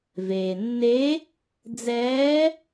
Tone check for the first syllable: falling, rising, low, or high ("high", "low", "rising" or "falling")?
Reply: low